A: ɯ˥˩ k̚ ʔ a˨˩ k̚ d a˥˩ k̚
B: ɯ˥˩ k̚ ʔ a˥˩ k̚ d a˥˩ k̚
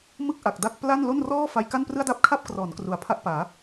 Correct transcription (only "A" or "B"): A